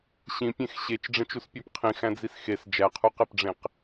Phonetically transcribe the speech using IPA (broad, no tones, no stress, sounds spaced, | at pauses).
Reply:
ɕ ĩ pʲ ẽ x ɕ e t͡ʃ ɖ͡ʐ ẽ t͡ʃ u s pʲ æ p qʰ ĩ x æ̃ d͡z i s x e s d͡ʒ æ qʰ u q e p ɖ͡ʐ ẽ q